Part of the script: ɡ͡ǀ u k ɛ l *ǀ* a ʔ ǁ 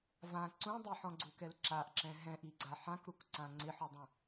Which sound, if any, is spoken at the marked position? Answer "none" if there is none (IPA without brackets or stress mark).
ǁ